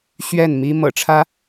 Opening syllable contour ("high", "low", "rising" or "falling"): falling